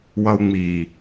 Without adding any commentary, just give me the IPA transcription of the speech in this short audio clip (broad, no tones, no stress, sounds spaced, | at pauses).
w ʌ u̯ ŋ͡m i